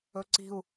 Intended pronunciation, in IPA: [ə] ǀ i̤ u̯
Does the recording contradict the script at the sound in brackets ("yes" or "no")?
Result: yes